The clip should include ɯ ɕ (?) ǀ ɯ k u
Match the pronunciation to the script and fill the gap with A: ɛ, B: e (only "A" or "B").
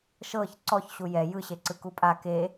B